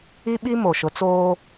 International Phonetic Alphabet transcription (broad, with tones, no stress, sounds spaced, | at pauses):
i˦ ɓ i˦ m o˨ ʃ ʊ˨˦ t͡s oː˦